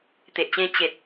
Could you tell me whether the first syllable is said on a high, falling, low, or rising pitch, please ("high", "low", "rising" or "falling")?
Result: low